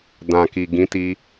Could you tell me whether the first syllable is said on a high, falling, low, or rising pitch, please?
low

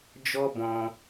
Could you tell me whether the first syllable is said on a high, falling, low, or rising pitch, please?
high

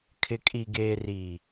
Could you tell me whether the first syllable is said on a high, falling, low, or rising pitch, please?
low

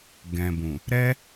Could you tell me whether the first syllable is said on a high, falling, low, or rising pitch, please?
low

